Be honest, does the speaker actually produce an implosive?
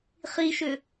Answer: no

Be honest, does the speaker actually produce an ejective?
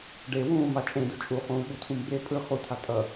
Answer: yes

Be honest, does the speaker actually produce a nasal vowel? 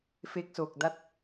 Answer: no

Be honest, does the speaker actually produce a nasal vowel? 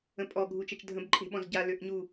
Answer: yes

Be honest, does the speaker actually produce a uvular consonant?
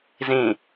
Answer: no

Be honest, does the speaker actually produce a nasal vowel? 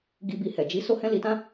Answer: yes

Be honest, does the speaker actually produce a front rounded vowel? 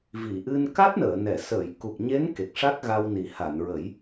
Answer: no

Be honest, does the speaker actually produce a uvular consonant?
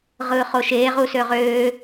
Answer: yes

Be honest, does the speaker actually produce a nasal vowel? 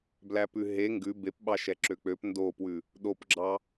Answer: no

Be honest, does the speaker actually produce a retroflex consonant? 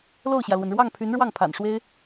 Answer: yes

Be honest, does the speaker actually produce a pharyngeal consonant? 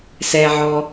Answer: yes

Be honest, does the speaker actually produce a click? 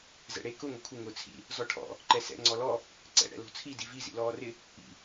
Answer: yes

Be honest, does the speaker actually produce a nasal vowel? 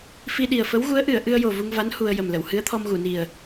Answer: no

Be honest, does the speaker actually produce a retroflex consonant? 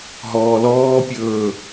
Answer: no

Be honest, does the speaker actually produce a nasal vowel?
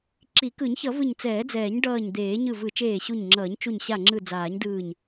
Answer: no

